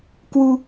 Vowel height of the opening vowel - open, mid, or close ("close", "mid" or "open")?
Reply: close